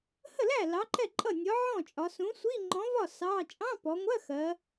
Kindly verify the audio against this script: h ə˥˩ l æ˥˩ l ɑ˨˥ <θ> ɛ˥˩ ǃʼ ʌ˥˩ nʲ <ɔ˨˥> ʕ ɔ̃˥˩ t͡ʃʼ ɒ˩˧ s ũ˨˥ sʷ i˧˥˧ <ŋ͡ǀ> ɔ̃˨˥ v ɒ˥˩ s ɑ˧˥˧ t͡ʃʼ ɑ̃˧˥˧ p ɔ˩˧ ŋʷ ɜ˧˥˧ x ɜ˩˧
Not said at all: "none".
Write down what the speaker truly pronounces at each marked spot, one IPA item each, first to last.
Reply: ǃ, ɔ˨˥, ŋ͡ǃ

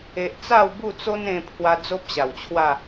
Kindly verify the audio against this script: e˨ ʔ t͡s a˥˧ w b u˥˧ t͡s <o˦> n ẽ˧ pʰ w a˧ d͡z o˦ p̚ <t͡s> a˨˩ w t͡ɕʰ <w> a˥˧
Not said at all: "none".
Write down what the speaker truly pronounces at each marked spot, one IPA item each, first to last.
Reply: o˦, ɕ, w

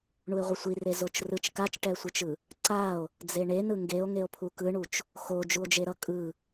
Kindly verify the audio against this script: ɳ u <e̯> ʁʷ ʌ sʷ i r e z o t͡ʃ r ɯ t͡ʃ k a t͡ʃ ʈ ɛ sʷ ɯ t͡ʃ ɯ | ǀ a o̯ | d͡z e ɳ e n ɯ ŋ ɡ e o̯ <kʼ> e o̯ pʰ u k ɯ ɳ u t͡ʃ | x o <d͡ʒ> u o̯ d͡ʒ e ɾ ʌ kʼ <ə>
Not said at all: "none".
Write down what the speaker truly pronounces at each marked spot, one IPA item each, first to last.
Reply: e̯, ŋ, d͡ʒ, ɯ

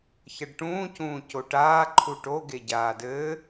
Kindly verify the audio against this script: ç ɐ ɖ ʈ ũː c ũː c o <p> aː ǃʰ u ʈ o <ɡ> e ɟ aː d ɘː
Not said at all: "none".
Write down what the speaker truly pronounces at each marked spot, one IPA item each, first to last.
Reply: ʈ, ɡ

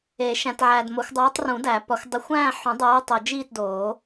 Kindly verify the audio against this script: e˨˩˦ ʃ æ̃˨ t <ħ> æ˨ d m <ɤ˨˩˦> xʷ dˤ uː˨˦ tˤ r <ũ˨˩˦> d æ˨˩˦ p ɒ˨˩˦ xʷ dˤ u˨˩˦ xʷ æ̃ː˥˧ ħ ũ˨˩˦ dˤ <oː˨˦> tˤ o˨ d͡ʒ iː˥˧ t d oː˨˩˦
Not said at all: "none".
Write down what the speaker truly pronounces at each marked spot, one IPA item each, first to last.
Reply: ʕ, o˨˩˦, ũ˨˩˦, uː˨˦

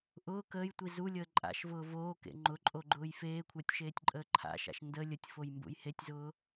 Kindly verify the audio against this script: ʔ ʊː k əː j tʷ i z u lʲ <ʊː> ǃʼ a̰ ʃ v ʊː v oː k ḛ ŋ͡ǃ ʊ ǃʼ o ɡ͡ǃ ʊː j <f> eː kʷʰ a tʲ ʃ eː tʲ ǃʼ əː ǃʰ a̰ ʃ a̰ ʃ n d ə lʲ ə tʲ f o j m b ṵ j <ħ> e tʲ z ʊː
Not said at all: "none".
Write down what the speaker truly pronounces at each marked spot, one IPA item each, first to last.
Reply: əː, f, h

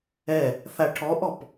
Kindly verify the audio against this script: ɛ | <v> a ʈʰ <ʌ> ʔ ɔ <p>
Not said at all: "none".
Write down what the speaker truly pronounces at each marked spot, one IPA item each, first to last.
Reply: θ, ɔ, p

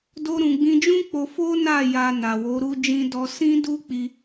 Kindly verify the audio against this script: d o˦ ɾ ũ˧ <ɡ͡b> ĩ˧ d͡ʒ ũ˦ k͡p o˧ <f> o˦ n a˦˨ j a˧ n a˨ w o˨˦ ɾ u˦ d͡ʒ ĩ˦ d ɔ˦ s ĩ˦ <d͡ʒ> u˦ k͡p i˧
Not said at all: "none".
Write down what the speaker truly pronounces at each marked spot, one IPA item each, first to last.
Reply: ɡ͡b, f, d

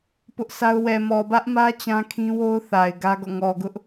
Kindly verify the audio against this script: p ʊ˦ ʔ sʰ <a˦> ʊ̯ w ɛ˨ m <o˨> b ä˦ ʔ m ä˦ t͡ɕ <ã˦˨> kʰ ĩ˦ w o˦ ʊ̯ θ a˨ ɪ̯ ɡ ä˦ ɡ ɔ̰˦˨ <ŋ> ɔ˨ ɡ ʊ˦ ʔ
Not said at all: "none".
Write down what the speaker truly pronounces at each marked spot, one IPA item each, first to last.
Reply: a˦, ɔ˨, ã˦, ŋ

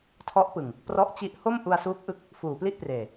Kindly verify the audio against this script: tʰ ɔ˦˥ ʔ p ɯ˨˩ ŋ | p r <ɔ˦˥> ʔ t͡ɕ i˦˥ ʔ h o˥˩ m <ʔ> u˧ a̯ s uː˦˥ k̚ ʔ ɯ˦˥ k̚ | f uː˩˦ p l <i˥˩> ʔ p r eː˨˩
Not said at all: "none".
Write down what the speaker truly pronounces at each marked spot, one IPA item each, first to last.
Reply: ɔ˦˥, ʔ, i˥˩

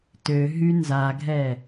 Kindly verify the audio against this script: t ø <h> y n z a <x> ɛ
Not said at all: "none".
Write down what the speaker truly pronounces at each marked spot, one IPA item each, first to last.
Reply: ɦ, ɡʱ

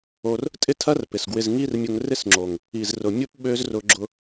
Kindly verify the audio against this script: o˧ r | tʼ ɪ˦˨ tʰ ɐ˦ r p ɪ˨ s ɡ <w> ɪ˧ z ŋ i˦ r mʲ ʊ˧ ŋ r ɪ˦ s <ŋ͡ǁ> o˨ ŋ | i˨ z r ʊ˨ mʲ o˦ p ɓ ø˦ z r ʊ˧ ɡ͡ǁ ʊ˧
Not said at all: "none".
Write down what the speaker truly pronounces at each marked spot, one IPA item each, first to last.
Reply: w, ŋ͡ǁ

